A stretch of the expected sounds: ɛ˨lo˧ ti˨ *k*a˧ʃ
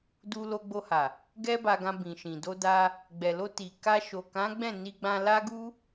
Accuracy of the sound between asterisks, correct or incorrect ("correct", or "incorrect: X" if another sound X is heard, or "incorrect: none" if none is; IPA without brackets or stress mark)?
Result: correct